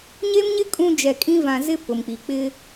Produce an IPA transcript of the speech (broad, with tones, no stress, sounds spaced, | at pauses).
ɲ e˦ m ɲ ɪ˦ kʼ ũ˦ d͡ʒ ɛ˨ kʼ ĩ˦ v ã˨ z ɪ˦ p ʊ˨ m k͡p i˨ k͡p ɪ˦